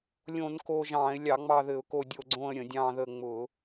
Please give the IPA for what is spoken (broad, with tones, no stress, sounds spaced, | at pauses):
lʲ õ˧˩˧ n k o˦˨ ʒ ɑ̃ː˧˩˧ ɪ̯ lʲ ɑ˧˩˧ ŋ͡m ɑ˦˨ ð ɘ˧˩˧ ʊ̯ k o˦˨ dʲ o˦˨ ɡ͡ǀ õ˦˨ ə̯ ɾʲ ə̃˧˩˧ dʲ ɑ̃ː˦˨ ð əː˦˨ ŋ͡m ʊː˧˩˧